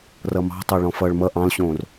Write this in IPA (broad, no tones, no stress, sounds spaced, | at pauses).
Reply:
r ʌ m ɑ̤ tˤ ʌ ɭ ɔ̃ f ʌ ɭ m ʌ ʔ ɑ̃ l ɕ õː r